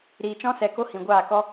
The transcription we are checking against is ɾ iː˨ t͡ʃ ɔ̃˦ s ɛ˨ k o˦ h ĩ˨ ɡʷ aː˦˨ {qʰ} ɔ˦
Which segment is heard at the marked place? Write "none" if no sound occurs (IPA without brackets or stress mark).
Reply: k